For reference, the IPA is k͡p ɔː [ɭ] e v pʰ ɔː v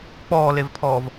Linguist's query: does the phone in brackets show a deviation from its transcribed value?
yes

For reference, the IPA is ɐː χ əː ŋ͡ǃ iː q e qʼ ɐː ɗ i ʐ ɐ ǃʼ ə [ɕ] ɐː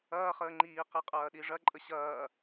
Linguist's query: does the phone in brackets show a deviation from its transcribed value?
no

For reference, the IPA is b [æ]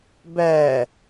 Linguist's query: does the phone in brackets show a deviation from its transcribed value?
no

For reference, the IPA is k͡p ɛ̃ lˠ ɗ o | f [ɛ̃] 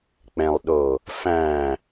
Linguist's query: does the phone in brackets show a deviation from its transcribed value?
yes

